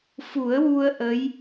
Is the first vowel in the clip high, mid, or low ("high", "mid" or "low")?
high